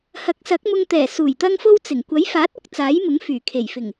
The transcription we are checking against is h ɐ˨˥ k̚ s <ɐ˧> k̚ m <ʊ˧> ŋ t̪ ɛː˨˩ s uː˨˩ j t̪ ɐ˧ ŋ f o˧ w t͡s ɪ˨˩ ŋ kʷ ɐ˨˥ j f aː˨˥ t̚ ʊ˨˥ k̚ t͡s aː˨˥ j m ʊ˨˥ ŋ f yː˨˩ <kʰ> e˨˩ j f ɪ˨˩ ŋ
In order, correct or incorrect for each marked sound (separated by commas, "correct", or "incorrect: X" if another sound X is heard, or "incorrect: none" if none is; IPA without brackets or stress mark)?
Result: incorrect: ɐ˨˥, correct, correct